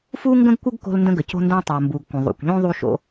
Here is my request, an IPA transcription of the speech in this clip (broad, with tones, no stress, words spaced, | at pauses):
fu˥ŋɡə̃˥ɡkʷə˥ɡ ko̤˥lndə̃˥ ɡə˩co̤˥ndõ˥ tˤo˩mbu˩ɡkʷə̃˩ ðˤṵ˩kʷʎõ˥ ðˤu˥ʃo̰˥